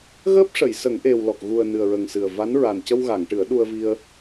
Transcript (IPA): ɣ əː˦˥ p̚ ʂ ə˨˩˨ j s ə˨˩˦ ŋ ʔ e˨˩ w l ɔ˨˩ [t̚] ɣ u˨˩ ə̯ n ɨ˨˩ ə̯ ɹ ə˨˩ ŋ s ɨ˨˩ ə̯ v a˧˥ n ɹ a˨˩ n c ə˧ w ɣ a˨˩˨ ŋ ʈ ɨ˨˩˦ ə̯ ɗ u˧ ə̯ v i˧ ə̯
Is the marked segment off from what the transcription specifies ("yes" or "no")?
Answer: yes